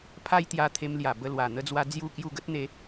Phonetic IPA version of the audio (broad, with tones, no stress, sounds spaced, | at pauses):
pʰ a˦ j t̪ j a˧ t̪ʰ e˧ m l j a˨˩ b ə˧ l w a˨˩ n̪ ə˧ d͡z w a˧ d͡z j u˥˧ k j u˥˧ ɡ ə˦ t̚ n̪ e˧